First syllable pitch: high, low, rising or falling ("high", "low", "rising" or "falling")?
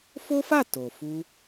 high